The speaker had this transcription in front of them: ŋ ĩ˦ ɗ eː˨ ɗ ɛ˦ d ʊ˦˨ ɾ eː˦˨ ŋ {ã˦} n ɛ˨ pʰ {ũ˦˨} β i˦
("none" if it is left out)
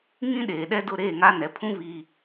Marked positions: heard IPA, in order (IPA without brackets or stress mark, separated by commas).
a˦, ũ˦